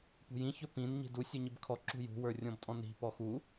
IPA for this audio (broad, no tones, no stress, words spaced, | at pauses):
pṳjĩ çɵpĩn ɲi̤du sʲuɲibkʰɔ ǁṳjṳ wə˞rʲɔ̃btʼɔ̃ni̤ pɔxu